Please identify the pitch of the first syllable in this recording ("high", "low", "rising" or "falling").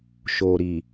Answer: low